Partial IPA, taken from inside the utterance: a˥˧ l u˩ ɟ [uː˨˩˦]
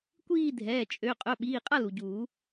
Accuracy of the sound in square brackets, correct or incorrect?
correct